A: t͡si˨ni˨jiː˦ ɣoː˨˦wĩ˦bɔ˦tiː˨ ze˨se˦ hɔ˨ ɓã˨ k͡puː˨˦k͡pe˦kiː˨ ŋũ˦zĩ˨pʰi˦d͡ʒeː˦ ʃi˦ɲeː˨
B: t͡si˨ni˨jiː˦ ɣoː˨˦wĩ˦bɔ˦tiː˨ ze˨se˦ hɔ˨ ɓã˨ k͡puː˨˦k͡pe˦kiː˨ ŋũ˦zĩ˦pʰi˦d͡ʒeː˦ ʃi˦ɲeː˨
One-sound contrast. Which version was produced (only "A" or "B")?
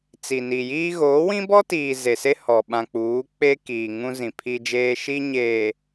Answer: A